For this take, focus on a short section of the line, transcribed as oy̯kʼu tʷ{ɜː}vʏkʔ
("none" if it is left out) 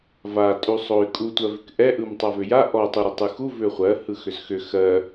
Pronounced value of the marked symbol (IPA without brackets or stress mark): ɜ